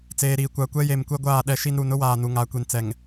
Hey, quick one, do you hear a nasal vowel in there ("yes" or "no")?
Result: no